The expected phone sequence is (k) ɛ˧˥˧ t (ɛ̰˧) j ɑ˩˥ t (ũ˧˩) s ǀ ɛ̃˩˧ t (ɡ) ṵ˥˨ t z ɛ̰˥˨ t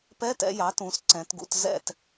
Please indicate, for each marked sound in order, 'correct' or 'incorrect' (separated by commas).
incorrect, correct, incorrect, correct